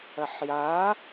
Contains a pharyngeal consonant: yes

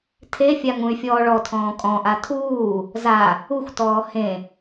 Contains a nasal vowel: yes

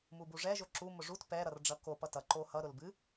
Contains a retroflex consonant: yes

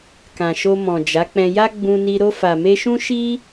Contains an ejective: no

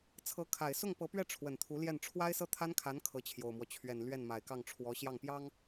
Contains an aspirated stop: yes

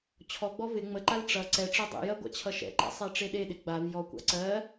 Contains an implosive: yes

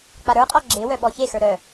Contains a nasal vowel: no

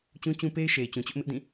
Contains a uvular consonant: no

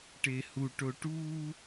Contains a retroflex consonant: yes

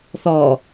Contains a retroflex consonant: no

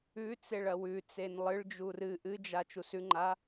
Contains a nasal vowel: no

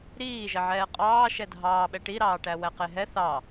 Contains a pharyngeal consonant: yes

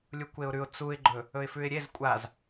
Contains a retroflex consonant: no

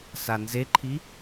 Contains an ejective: no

